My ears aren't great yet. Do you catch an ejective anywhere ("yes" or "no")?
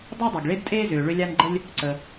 yes